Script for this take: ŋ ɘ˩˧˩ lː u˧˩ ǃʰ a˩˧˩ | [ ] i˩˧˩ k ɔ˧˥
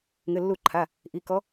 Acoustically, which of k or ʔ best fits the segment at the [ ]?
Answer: ʔ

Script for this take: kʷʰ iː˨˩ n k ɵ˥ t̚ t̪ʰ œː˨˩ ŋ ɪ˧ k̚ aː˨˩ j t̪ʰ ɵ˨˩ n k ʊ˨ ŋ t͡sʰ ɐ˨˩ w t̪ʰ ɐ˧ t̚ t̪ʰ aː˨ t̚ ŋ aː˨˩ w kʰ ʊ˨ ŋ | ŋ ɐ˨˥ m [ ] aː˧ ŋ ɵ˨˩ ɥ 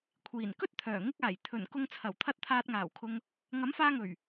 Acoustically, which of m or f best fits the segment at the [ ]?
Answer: f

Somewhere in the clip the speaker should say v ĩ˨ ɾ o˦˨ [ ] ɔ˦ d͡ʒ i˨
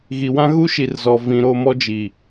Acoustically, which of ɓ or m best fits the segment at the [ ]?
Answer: m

